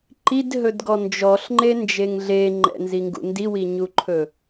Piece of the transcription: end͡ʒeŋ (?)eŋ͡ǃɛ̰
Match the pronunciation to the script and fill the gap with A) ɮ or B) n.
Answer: A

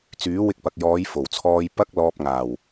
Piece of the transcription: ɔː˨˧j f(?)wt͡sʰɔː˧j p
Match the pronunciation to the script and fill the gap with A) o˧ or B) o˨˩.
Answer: B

